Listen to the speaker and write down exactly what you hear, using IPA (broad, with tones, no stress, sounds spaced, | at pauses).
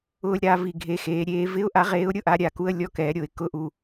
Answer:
ʊː˦˨ lʲ ɾ a˨˥ v i˨˩ ɡʱ e˨˩ x eː˩˧ ɾʲ eː˨˥ v ɪ˧˥˧ ʊ̯ ʔ a˨˥ ʁ eː˨˥ ʊ̯ ɾʲ ʊ˧˥˧ ʔ a˧˥˧ ɾʲ a˨˩ k u˧˥˧ ə̯ lʲ ɔ˧˥˧ k ɛː˩˧ ɾʲ o˨˩ ɪ̯ k ʊ˧˥˧ ʔ u˨˩